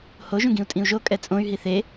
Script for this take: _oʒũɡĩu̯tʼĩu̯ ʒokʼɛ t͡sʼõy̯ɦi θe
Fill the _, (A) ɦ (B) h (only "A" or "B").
B